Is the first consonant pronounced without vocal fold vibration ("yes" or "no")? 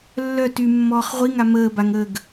no